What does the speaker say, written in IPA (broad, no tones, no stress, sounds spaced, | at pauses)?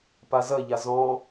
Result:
p a z ɐ ʎ a z ɔ̃